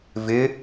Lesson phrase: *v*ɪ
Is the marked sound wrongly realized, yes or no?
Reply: no